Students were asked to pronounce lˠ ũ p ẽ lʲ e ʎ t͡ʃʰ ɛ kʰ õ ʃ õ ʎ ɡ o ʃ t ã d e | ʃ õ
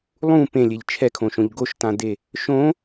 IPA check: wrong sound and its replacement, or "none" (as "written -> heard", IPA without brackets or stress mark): none